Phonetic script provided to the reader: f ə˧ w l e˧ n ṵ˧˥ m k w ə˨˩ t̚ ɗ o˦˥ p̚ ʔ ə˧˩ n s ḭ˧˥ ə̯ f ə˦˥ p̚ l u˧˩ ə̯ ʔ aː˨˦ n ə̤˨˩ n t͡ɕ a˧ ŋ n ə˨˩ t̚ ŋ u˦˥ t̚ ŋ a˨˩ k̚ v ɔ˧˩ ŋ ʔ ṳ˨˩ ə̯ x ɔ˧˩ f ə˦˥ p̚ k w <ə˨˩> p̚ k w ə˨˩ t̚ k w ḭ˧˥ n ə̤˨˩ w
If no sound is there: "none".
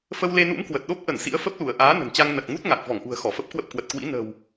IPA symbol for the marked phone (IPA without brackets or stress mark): ə˦˥